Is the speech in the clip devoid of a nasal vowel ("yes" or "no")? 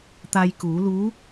yes